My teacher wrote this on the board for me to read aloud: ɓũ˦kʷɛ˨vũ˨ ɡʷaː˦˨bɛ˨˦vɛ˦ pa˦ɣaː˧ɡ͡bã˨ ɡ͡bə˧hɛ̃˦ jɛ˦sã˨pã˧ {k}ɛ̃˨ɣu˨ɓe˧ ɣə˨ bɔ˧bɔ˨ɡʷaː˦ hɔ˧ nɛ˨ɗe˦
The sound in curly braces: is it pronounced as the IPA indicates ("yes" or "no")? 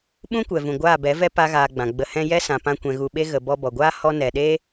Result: no